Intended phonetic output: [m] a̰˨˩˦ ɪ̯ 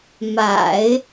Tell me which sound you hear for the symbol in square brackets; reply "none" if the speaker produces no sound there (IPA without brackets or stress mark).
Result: m